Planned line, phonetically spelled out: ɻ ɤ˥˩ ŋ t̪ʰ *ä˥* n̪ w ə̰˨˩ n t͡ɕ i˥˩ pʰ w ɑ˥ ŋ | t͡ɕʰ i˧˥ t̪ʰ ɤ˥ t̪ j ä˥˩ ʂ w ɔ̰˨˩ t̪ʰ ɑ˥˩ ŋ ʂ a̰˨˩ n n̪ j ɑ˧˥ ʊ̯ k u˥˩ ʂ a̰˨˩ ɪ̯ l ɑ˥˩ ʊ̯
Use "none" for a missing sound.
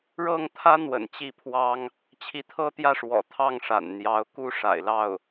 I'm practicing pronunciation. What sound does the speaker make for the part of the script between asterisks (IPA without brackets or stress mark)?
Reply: ä˥